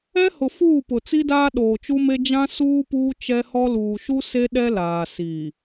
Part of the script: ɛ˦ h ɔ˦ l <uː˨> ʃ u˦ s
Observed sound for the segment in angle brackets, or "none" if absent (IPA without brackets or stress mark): uː˨